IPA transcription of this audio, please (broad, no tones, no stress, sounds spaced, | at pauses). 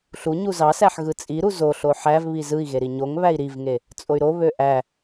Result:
ɬ u ɲ u z ɑ s æ ħ ɣ ɯ t͡sʼ i ɾ u z o ɬ o ħ æ v β i z ɯ i̯ ɣ e ɾ i ɲ o ŋ β æ i̯ ɾ i v ŋ e | t͡sʼ o y̯ ɾ o β ø ʔ æ